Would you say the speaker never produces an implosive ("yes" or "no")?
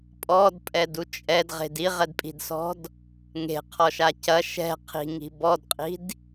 yes